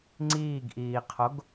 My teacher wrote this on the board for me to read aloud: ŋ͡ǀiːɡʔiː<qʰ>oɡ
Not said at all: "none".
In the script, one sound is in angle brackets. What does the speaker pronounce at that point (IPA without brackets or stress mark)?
qʰ